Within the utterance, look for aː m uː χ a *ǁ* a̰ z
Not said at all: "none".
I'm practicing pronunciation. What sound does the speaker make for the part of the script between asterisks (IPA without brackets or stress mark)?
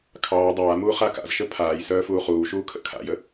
k